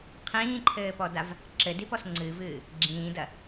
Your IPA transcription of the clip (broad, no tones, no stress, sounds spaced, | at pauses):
qʰ ĩː ǃʰ ɘː p ɔ d a v | ǁ ɘ d i p ɔ s ŋ͡ǀ ɨ v ɨː | ɡ͡ǁ ĩː d ɐ